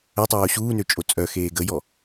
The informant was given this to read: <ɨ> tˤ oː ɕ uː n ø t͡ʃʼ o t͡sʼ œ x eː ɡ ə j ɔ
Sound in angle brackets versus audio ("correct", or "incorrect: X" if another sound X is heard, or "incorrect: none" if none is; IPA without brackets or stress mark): incorrect: ə